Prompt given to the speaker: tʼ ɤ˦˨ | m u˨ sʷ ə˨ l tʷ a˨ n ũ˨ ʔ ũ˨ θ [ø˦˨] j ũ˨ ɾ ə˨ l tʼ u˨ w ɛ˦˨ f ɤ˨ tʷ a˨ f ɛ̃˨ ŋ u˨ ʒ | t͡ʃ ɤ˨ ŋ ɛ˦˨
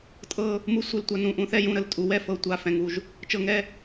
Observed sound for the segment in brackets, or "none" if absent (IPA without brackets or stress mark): ɛ˦˨